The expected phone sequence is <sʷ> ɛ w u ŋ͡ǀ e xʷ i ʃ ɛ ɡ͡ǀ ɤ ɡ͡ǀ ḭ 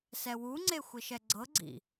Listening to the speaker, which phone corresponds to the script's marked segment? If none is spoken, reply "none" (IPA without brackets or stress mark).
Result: s